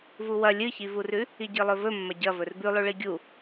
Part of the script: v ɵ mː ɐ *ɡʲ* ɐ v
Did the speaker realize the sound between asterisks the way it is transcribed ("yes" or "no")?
no